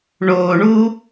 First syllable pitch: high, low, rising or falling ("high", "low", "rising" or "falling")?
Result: low